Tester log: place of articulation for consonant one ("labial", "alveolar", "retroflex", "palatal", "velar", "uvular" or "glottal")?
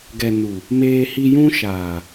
velar